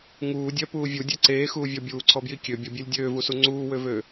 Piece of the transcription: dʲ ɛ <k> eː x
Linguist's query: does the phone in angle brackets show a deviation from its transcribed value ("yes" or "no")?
yes